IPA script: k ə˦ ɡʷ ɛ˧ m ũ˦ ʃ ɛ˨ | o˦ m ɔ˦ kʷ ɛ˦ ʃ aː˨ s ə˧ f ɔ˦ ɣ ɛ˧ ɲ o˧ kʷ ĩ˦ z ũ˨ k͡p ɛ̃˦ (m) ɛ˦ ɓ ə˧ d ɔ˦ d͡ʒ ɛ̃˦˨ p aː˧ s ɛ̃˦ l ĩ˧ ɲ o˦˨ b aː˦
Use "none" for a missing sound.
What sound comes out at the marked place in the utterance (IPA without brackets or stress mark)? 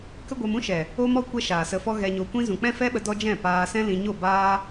f